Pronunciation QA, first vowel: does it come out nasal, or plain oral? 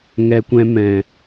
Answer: oral